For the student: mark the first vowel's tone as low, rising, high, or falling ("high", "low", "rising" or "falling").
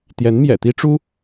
rising